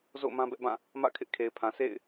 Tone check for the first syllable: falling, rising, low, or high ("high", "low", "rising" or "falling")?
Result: falling